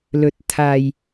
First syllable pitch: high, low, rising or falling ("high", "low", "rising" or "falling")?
low